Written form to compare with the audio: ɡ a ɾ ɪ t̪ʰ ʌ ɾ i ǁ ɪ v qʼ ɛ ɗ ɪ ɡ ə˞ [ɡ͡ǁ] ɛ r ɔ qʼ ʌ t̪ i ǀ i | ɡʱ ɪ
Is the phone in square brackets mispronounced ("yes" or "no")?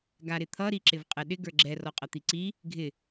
no